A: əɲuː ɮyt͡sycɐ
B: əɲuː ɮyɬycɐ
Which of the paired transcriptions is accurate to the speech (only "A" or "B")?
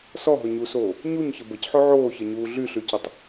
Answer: B